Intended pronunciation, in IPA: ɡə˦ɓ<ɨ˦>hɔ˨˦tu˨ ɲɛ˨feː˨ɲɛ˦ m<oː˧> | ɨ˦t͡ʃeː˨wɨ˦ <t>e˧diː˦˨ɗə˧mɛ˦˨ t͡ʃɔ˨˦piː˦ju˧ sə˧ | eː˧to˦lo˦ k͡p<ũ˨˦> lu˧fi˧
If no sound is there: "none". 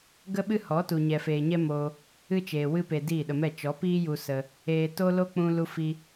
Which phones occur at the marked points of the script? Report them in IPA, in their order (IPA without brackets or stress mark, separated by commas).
ɨ˦, oː˧, p, ũ˦